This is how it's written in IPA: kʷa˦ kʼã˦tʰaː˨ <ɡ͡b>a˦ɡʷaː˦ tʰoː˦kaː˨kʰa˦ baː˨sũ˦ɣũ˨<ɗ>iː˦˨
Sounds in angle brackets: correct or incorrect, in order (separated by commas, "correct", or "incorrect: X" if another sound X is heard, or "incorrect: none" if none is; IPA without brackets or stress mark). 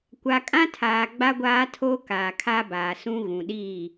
correct, correct